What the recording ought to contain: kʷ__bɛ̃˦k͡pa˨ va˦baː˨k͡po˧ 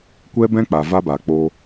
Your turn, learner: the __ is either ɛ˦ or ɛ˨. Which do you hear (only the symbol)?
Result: ɛ˦